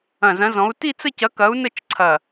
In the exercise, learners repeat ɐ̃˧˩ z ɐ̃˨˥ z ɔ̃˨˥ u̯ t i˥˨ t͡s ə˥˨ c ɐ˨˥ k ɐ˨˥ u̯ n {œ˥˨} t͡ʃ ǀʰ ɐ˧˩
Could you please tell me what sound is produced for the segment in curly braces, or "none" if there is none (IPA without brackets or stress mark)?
ə˥˨